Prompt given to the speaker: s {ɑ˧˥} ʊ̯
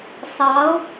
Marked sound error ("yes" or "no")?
no